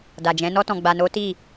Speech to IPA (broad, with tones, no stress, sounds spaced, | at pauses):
d a˨ d͡ʒ ɛ̃˨˦ n ɔ˧ t ɔ̃˨ ɡ͡b a˨ n o˨˦ t i˦˨